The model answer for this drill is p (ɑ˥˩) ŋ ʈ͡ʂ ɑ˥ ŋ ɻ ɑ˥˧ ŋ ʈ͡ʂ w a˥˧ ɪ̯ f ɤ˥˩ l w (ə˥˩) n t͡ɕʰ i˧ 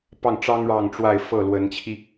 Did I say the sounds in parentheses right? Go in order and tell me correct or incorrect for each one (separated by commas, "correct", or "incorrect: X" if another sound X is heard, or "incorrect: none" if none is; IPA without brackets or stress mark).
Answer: correct, incorrect: ə˧˥